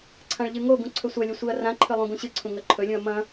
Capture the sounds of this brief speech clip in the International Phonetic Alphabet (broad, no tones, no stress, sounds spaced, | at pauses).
ǀʰ ã ɭ ʎ ɨ ŋ o ɡ ũ ǀʰ ɵ sʷ ɐ lʲ ɵ sʷ i ɐ̯ r ã ǃʰ ɨ lˠ ũ ɡ ũ ɕ ɨ ǀʰ ũ ŋ ɐ ǃʰ ɵ lʲ ũ ɐ̯ m ɐ̃